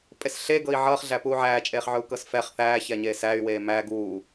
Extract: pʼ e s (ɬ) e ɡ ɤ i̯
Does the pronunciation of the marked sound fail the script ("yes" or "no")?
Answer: no